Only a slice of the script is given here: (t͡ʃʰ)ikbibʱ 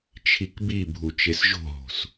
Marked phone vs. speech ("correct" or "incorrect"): correct